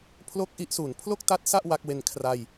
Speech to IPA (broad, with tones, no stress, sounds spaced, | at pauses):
pʰ l o˥˩ k̚ ʔ i˦˥ ʔ s u˩˦ n pʰ l o˥˩ k̚ t a˦˥ t̚ s a˥˩ ʔ w a˦˥ k̚ w e˧ n kʰ r a˧ j